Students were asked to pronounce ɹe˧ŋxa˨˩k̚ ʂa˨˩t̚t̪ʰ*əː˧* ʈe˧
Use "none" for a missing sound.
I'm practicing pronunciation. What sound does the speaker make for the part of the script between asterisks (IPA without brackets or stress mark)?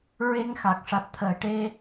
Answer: əː˨˩˨